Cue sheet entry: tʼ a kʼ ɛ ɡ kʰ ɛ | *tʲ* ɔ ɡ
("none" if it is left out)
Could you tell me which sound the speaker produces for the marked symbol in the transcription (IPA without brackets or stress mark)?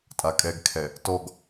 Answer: t